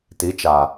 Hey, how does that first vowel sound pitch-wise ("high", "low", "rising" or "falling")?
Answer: rising